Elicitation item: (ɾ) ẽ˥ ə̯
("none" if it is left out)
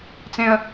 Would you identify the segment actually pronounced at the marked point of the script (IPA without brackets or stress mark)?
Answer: t͡s